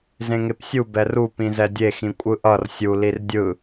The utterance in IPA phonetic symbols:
z ẽ ŋ e p sʲ u b ɛ r u p ĩ z ɛ dʲ e x ĩ kʷʼ ɯ ʔ ʌ r sʲ u l i r dʲ ɯ

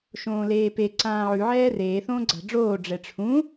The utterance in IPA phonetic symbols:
ʃ õː l eː p e ǀ ãː ʕ ʉ ʕ ɛː r eː θ õː ɡ͡ǀ a̤ ɖ͡ʐ oː ɖ͡ʐ ɛ ʈ͡ʂʰ ũ

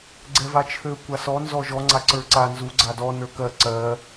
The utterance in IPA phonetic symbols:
ɡ͡ǀ ɛ v a t͡ʃʰ ø kʷ a s ɔ n z ɔ ʒ ɔ ŋ͡ǀ a ǀ ə˞ ǀ a n z u ɡ͡ǀ a d ɔ n ə˞ k ɜ ǀ ɜ

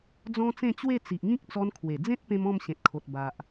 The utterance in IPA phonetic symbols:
d͡z ɔ̃˦ t͡s ẽ˥˧ t͡ɕ w e˥˧ t͡s i˨ ʔ ŋ ĩ˦ k̚ t͡s ɔ˧ n kʰ w e˨˩ d͡z ẽ˦ t̚ p ẽ˧ m ɔ̃˥˧ m ɕ ẽ˨ t̚ kʰ o˨ t̚ b a˨ ʔ

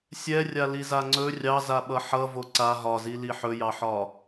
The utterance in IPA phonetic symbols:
sʲ ɛ rʲ a l i z a ŋ͡ǀ ɵ rʲ ɑ z a ɓ ʌ ħ ʌ v o ǀ a ɦ ɒ z i l i ħ ɵ j ɑ ħ ɒ

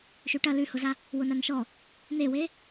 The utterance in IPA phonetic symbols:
ʃ ʉ ʈ ɐ l ʉ h ʊ z a | w ʊ n a n ʃ ɔ | n e w e

